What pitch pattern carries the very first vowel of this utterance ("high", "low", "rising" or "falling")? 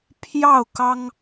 falling